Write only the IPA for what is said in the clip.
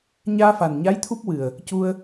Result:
ɲ aː˧ f a˨˩ n ɲ a˧˥ j t̪ʰ u˦˥ p̚ w ɨ˨˩ ə̯ | c u˧ ə̯

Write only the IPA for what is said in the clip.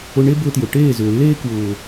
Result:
ʊ˧ ɳ e˦ b ʊː˧ t j ʊ˨ ʈ eː˦˨ z ʏː˨ lː eː˧ k w ʊː˨

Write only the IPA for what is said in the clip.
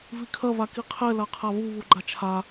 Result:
v i kʰ ɐ β a k i qʰ ɛ l a qʰ a β u β u ɡ͡ǃ a t͡ʃʰ a

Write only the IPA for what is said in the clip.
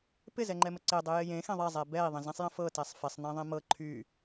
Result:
p ɪ z ɛ ŋ͡ǃ ɛ m ə ǀ e dˤ e j ɪ j ẽ x ɛ̃ ðˤ ɛ zˤ ɛ b ɛ i̯ ðˤ ə̃ z ɛ̃ sˤ j ə̃ f ɤ t ɛ sˤ f ɪ sˤ n ẽ ðˤ ẽ m ɤ ǃʰ y

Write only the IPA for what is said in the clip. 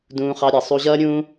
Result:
d ũː˧ χ ɑ˧ ɾʲ ʌ˨ sˤ u˧ ʑ ʌː˦ ɾʲ ũː˦

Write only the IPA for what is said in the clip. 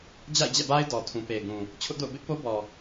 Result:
d͡ʑ a̰˦˨ ɪ̯ d͡ʑ ɛ̰˦˨ b a˦ ɪ̯ d ɔ˨ tʰ ũ˨ p e˨ ɪ̯ ɡ ũ˨ | t͡ɕʰ ʊ˦ ʔ d o̰˦˨ ʊ̯ b ɪ˦ ʔ p o˦ b ɔ˨

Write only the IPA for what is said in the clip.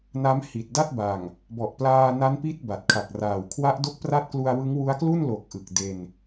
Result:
n a˦˥ m h i˨˩ t̚ d a˥˩ t̚ b a˨˩ ŋ | b ɔ˨˩ ʔ p l aː˧ n a˦˥ n p i˦˥ t̚ b a˨˩ t̚ kʰ a˨˩ k̚ r aː˨˩ w kʰ w a˦˥ ʔ d o˦˥ k̚ p r a˦˥ t̚ k l u˧ a̯ w ɯ˦˥ ŋ w u˦˥ a̯ k l u˥˩ n l o˨˩ k̚ ʔ ɯ˨˩ k̚ d e˧ n

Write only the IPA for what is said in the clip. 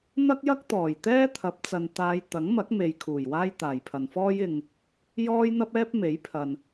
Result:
n̪ ɐ˥ k̚ j ɐ˥ k̚ t̪ ɔː˨˩ j t̪ ɛː˥ t̪ʰ ɐ˨˥ p̚ t͡s ɐ˨ n t̪ aː˨˧ j t̪ ɐ˨˥ ŋ m ɐ˨˥ k̚ m e˨ j kʰ uː˨˩ j w aː˥ j t̪ aː˨˩ j pʰ ɐ˨ n f ɔː˥ j ɪ˨ ŋ | j ɔː˥ j n̪ ɐ˥ p̚ ɛː˥ p̚ m e˨˥ j pʰ ɐ˨ n

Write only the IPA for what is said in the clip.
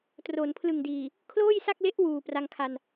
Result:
t r o˩˦ n pʰ l ɯ˨˩ ŋ d iː˨˩ | kʰ l oː˥˩ j s a˥˩ k̚ l e˦˥ ʔ w uː˨˩ p r a˧ ŋ kʰ a˧ n

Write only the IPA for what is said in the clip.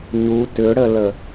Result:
ɲ u t ʏ ɽ ə l ə

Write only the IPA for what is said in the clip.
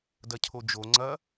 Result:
d ɐ cʰ o d͡ʒ o ŋ͡ǀ ɐ

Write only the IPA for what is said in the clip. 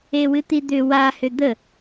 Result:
e w ɨ t̪ i d̪ ʏ w a h ʏ d̪ ə

